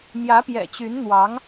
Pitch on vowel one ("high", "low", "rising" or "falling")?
rising